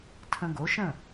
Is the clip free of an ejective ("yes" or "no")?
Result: yes